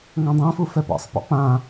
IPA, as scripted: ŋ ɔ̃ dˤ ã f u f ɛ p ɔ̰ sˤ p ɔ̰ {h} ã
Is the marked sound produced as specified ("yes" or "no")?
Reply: no